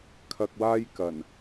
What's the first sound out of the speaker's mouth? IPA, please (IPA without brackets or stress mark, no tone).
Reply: kʰ